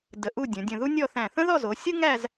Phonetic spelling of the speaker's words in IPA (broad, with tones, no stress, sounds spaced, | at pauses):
d ə˧˩ ʔ u˥˧ dʲ ə̃˩˧ dʲ ə̃˧˩ ð u˥ nʲ ɔ˥˧ θ æ̃˧˩ θ ə̃˥ ð ɔ˥˧ z o˩˧ sʲ ɯ˥ ŋ æ˥˧ z